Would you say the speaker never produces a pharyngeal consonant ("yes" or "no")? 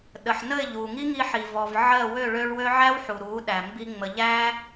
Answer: no